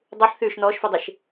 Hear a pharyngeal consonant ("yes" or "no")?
yes